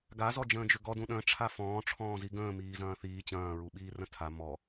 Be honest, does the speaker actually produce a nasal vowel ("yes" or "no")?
yes